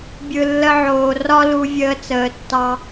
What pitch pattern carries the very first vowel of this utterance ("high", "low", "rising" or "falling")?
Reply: low